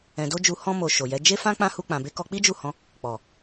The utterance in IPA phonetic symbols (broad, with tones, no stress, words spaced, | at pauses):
ɛ̃˧do˦d͡ʒu˧ hɔ̃˧mo˨ ʃo˨jɛ˨˦ d͡ʒe˦fã˦ k͡pã˦hu˧k͡pã˨be˧ kɔ˧k͡pi˦d͡ʒu˦˨hɔ̃˧ | k͡pɔ˨